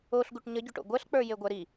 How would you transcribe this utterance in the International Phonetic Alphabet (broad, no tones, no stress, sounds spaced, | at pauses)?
o ɬ ɡ u ʈ ɲ ə ɟ o ʈ o̰ ɡʷ ɜ ɬ k͡p ə˞ j e ɡʷ ɜ ɾ i